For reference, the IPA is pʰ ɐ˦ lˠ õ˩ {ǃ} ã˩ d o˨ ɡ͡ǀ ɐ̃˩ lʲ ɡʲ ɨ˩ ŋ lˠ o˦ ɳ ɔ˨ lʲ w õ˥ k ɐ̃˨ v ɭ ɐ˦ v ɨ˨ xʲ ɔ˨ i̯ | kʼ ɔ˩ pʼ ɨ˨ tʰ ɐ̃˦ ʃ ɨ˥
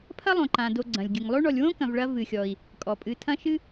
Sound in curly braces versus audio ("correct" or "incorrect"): correct